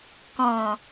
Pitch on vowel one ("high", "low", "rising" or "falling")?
low